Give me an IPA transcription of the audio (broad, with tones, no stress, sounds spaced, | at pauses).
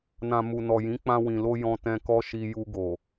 n ã˨ m u˨ n ɔ˨ j ĩ˨˦ k͡p ã˧ w ĩ˨ l o˧ j ɔ̃˧ t ɛ̃˧ k ɔ˦ ʃ i˧ j u˧ ɡ o˨